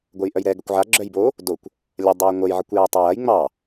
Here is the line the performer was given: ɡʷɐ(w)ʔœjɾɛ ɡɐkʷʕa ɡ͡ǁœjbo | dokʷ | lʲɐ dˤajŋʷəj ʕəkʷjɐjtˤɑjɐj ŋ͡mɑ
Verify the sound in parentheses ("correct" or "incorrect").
incorrect